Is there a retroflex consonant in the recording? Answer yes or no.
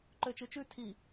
no